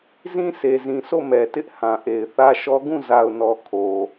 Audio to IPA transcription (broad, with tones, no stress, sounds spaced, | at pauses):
z ĩ˦ s e˨ z ĩ˨ s o˦˨ m ɛ˨ t ɪ˦ ʔ h ã˨ ʔ e˨ ɪ̯ θ ä˦ ʃ ɔ˦ ɡ ũ˦˨ z a˨ ʊ̯ n ɔ˨ kʰ o˨